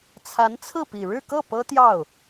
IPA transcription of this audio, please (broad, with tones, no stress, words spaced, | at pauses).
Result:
t͡sʰa˧˥nt͡sʰɹ̩˥˩pi˨˩ ɻɻ̩˥˧kɤ˥˩ pɤ˥t̪jɑ˥˩ʊ̯